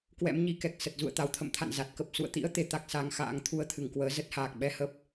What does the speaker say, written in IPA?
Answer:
k w ɛ̰˧˥ m ɲ i˨˦ k ɛ˨˩ k̚ s ə˨˩ t̚ z ṵ˧˨ ə̯ t̪ a˨˦ w t̪ʰ ə̰˧˨ m t̪ʰ a̰˧˨ n z a˨˩ t̚ k ə˨˩ p̚ s ṵ˧˨ ə̯ t̪ ḭ˧˥ ə̯ t̪ e˧ t̪ a˦˥ k̚ s a˨˦ ŋ x a̰ː˧˥ ŋ t̪ʰ u˧ ə̯ t̪ʰ ɨ˧˩ ŋ k w əː˨˦ z ə˦˥ t̚ h aː˨˩ k̚ ɓ ɛ˧ h ə˦˥ p̚

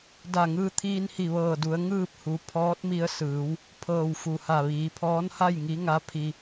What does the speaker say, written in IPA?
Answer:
d a˧˩ ŋ ɯː˧ t̪ʰ iː˧ n h i˧˩ ʋ ɤː˧˩ d u˩˧ ə̯ ŋ ɯː˥˨ p̚ h u˩ pʰ ɔː˧˥ t̚ m i˧ ə̯ s ɯː˩˧ w | pʰ ɤː˧˩ w f u˩ h a˧˩ ʋ iː˩˧ pʰ ɔː˧˥ n h a˥˨ j ŋ i˧˥ ŋ a˧˥ pʰ i˧

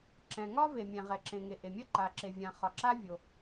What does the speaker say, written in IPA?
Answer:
ǁ ɛ̃˩ ŋ ɒ˥ v e˩ mʲ ɛ̃˩ ʁ ɛ˩ ǁ ẽ˩ ŋ e˩ ʔ e˩ mʲ ɐ˥ ǃ a˩ ǁ e˩ vʲ ã˩ χ ɒ˩ ǁ a˥ vʲ o˩

